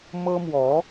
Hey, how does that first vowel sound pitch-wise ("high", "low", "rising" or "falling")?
high